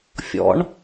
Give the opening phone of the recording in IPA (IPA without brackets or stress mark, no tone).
fʲ